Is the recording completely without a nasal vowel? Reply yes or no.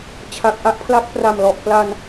yes